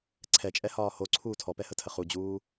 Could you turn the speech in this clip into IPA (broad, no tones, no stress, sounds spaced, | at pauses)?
ǀʰ ɛ t͡ʃʼ ɛ h ɒː h o ǀʰ uː tʰ ɔ p ɛ h ə tʰ ə χ u d͡ʑ uː